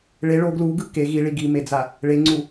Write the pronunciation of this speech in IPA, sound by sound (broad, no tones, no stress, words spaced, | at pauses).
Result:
ɭe ɭo ɡluɡɯ ke ɣiɭi ɡimed͡za | ɭeŋ͡ǀu